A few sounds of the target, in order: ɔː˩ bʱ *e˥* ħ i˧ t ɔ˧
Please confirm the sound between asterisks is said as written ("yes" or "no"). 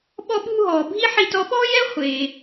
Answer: no